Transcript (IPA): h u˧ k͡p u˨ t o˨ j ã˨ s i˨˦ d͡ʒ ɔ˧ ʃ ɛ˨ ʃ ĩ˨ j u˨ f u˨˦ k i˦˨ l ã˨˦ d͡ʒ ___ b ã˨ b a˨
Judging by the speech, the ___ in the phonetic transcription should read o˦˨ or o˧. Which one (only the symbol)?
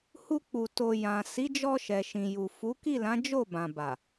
o˦˨